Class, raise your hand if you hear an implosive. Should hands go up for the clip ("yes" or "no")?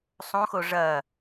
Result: no